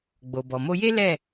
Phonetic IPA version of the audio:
ɡ͡b o˨ b ɔ˨ m o˧ j e˦ l ɛ˦˨

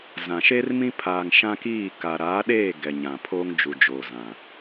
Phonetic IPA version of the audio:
z ã˨ ʃ eː˦ r m ĩ˦ pʰ aː˨ ŋ ʃ ã˦ k iː˦˨ k a˨ ɾ aː˨˦ ɗ eː˦˨ ɡ ɛ˨ ɲ ã˨ pʰ oː˦ ŋ d͡ʒ u˨ d͡ʒ oː˨ z ã˨

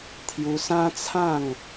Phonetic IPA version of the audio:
t̪ʰ j u˧ s ã˦ t͡sʰ ã˥˧ ŋ

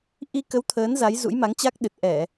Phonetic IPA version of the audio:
ʔ i˧ k ə˨˦ w t̪ʰ əː˨˦ n z a˨˦ j z ṵ˧˥ j m a˨˦ ŋ t͡ɕ a˦˥ k̚ ɗ ɨ˨˩ t̚ ʔ ɛ˧˩˨

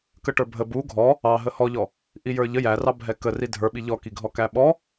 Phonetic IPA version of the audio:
k ə ʈ ə˞ bʱ ə b u ɡʱ ɔ | ɑ ɦ ə h ɔ ʎ ɔ | ʔ i j ə˞ ʎ ə j æ r ɑ bʱ ɛ k ə r i dʱ ə˞ ɓ i ʎ ɔ k i ɡʱ ɔ k æ ɓ ɔ

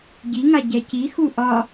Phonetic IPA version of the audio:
ɟ i ŋ a ɟ ɛ c i x u ʔ ɒ

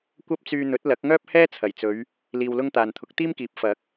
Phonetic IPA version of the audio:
kʷ ɐ˥ p̚ t͡s yː˧ n̪ ɵ˨˥ t̚ l ɐ˨˥ k̚ ŋ œː˥ p̚ h ɛː˥ t͡sʰ ɐ˨˩ j t͡s ɵ˨˧ ɥ | l iː˧ w l ʊ˥ ŋ t̪ aː˨ n t̪ʰ ʊ˨˥ k̚ t̪ iː˥ m k iː˨ p̚ f ɐ˨˥ k̚

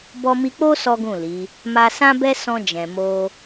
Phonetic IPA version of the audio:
b ɔ˧ m i˧ k͡p o˦ s ɔ˦ ɡ ũ˦˨ l i˨˦ | m a˧ s ã˦ b ɛ˦ s ɔ̃˧ d͡ʒ ɛ̃˨ m o˧

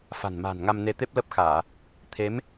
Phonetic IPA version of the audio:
f a̤˨˩ n m a̤ː˨˩ n ŋ a˧ m n e˧ t̪ e˦˥ p̚ l ə˦˥ p̚ x aː˧˩˨ | t̪ʰ e˨˦ m

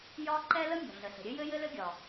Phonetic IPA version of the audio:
j ɒ˥ ǃ ɛ˥ l ə˥ mʲ ɔ̤˩ ɮ ə˩ ɬ ə̤˩ ɾʲ ɘ˥ j ɘ˥ j ɘ˥ l ɘ˥ ɡʲ ɒ˩

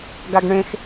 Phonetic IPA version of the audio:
ɡ a ɡ ɳ ẽ x

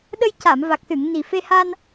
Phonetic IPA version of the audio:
ɗ ə˧ j c a˨˩˨ m v a˨˩ k̚ s ɨ˨˩˨ ŋ n i˨˩ f e˧ h a˧ n

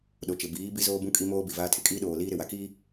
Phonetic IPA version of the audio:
ɗ o˨ t͡ʃ ɪ˨ b iː˨˦ b i˦ z oː˦ b ũ˦ kʼ i˦ m oː˦ b i˨ v aː˦ tʰ ɪ˨ kʼ iː˦ ɗ oː˨ l iː˦ ɾ ɪ˨ w a˨ k iː˦

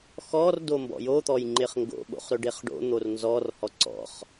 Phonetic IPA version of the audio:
x ɔ r d o m b ɔ̰ j o t̪ ɔ j ŋ͡ǃ ɪ χ ŋ ɡ o̰ ɓ o̰ χ ɾ ɵ ɖ e χ ɖ o̰ n̪ o r n z ɔ r h ɔ ǀ ɔ̰ χ

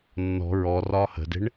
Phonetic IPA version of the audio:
nː ɔ̤ ɹ ɔ r ɒː h ə̤ d e̤ ɳ

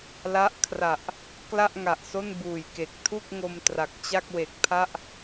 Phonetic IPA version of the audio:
l a˦˥ ʔ kʰ r a˨˩ ʔ | k l a˥˩ ʔ ŋ a˨˩ ʔ s o˥˩ n b uː˨˩ j k e˨˩ k̚ tʰ u˥˩ k̚ ŋ o˧ m t r a˨˩ k̚ t͡ɕ a˥˩ k̚ w e˨˩ k̚ pʰ a˥˩ ʔ

